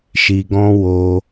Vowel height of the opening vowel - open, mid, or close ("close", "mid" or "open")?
close